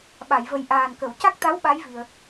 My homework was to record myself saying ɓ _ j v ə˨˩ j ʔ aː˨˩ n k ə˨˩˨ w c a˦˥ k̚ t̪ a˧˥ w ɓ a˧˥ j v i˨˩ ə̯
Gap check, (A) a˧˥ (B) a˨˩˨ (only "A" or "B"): B